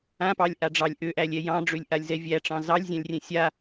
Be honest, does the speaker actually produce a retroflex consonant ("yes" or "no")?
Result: yes